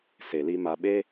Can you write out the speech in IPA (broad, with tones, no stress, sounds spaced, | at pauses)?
s e˨ l i˧ m a˧ ɓ e˦